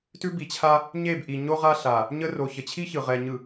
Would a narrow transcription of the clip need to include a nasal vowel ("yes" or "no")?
no